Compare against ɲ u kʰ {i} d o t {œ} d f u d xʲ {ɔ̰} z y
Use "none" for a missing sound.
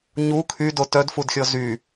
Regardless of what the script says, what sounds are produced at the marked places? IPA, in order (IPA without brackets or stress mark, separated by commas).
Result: y, œ, ɔ